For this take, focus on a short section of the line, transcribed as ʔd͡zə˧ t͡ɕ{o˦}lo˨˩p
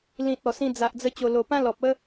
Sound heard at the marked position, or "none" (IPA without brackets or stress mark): o˨˩